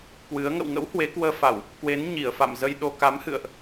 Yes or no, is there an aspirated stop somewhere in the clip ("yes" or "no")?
no